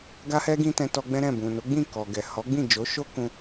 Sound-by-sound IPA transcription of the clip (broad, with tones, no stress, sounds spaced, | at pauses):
ɡ a˧ h ɛ˧ ɡ ĩ˧ t ɛ̃˧ t ɔ˧ ɡ͡b ɛ̃˦ ɾ ɛ̃˦˨ b ũ˨ n o˨˦ ɡ͡b ĩ˦˨ k ɔ˨ ɡ ɛ˨ h ɔ˨˦ ɡ͡b ĩ˦˨ d͡ʒ o˨˦ ʃ o˦ k ũ˧